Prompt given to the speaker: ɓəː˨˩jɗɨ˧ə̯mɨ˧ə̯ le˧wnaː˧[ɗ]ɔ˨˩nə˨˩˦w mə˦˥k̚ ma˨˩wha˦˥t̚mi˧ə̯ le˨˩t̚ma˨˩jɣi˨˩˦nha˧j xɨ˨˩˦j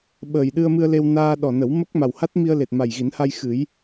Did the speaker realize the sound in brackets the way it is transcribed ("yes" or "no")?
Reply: yes